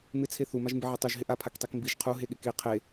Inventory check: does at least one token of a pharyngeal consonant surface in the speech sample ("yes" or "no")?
yes